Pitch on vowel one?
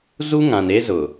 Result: high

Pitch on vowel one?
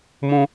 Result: high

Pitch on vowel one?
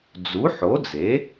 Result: rising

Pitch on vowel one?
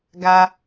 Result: high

